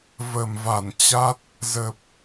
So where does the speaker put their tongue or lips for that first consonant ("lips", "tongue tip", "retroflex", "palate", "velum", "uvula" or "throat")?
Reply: lips